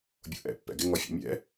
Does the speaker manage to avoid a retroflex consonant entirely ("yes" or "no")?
yes